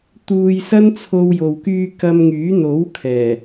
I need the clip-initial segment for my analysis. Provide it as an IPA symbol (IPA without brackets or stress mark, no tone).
t̪